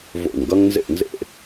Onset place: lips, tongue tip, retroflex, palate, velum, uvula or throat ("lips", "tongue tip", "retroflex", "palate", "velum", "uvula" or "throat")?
lips